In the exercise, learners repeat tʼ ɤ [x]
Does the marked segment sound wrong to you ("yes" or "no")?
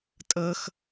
no